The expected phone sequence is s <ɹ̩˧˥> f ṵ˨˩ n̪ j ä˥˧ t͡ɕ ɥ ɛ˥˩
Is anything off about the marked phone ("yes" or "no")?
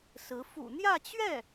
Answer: no